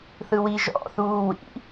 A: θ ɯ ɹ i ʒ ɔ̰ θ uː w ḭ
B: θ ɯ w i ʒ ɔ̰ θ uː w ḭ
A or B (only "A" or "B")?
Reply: B